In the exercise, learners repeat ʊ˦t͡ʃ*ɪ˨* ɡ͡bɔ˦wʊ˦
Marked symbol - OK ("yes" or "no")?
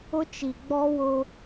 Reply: no